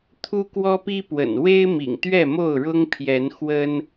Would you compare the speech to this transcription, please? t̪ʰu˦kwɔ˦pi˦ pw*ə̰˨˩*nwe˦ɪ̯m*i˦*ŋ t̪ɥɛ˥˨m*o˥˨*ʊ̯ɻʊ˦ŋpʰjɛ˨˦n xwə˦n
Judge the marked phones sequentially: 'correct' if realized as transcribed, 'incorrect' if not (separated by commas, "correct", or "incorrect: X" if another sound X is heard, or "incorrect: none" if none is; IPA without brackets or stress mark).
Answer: correct, incorrect: ḭ˨˩, correct